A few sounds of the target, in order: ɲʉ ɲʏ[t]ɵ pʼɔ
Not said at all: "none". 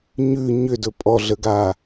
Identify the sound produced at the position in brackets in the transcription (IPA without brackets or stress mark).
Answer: d